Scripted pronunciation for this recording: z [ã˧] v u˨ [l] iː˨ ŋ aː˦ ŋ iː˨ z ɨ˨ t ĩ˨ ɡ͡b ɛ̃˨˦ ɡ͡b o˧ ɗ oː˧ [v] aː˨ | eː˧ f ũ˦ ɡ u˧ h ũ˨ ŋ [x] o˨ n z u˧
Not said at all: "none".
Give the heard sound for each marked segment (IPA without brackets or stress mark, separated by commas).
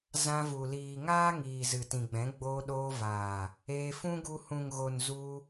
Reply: ã˧, l, v, ɣ